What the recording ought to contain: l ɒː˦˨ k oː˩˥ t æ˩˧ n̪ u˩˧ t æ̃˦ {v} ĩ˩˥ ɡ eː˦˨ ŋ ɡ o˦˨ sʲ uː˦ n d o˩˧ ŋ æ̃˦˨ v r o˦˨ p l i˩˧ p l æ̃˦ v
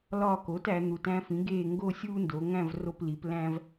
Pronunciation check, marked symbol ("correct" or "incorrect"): incorrect